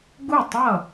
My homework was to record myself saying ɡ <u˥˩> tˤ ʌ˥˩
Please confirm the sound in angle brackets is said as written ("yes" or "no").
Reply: yes